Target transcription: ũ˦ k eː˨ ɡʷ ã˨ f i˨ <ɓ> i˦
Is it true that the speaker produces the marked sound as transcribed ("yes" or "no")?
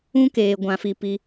no